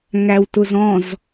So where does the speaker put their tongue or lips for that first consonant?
velum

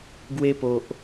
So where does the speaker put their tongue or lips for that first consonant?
velum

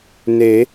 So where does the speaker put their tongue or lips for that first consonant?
tongue tip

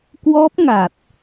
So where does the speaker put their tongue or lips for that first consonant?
velum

